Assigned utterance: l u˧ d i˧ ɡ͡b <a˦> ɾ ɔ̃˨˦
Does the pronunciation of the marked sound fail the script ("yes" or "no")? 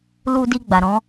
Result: yes